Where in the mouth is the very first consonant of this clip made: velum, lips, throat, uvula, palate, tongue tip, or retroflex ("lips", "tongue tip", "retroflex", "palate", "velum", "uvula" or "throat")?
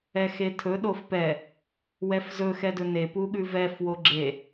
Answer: velum